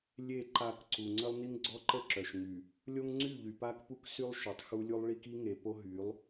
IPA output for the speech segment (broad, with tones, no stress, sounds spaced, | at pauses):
lʲ e˦˨ ǃ a˦˨ k ǀ u˨ ŋ͡ǀ ə˦ lˠ n i˦ ŋ ɡ͡ǀ ɔ˦ ǃ ə˦˨ ǁ œ˨ ʃ ŋ y˨ | lʲ o˦ ŋ ŋ͡ǀ y˦˨ ʎ y˨ p a˦ k p u˦ k s y˦ lˠ ʃ o˨ tˤ x u˦ lʲ u˦ lˠ ɭ i˦ k i˦ ŋ e˨ p o˦ ɦ y˨˦ lˠ